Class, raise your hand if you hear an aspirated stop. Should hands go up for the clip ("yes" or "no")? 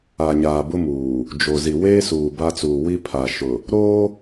yes